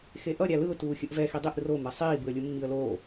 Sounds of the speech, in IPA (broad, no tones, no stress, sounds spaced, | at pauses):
x e ʔ ʌ ɾʲ a l ɯ ʊ̯ t uː xʲ ɯ ʔ v ɛ x i dˤ i ʔ r o m ɛ sˤ iː b ɯ ə̯ lʲ u mː i ə̯ l oː